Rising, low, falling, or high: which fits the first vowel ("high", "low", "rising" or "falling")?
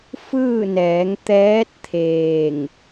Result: falling